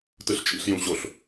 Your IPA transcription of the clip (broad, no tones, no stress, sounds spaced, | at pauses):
t ɯ ɬ t͡ʃʼ ḭ ɬ j ũ ɕ o ɬ